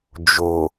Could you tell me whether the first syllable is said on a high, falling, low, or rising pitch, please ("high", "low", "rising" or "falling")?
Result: low